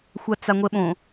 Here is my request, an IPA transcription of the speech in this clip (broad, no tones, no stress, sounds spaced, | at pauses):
xʷ a t͡s a ŋʷ ɛ ɓ õ